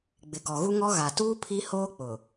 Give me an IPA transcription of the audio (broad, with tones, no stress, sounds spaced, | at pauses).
ɡ͡b ɪ˨ ɡ ɔ˨ ɣ u˦ ŋ ɔ˦ ɣ a˨ t uː˦ pʰ i˦ h oː˦ k͡p ʊ˨